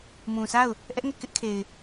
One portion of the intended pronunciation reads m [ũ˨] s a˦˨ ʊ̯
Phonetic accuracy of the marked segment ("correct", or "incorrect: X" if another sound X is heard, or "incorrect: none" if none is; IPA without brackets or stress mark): correct